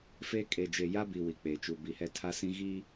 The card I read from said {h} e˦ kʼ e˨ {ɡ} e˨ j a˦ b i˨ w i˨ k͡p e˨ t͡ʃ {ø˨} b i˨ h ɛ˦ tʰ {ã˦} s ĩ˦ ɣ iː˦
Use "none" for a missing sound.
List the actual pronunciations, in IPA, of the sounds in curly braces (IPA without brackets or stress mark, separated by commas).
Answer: f, d͡ʒ, u˨, a˦